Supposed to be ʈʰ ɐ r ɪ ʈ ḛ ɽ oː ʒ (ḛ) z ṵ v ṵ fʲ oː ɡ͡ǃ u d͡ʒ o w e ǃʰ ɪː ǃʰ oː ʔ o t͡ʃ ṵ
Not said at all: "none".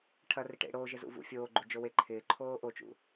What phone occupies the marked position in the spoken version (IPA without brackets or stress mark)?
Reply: e